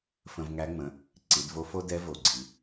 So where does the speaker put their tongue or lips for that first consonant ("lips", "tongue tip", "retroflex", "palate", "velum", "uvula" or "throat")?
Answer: lips